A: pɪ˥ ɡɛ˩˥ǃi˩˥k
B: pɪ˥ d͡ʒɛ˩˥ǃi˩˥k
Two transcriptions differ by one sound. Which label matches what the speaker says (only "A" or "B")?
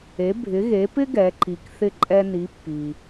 A